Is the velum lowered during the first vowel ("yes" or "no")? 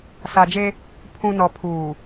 no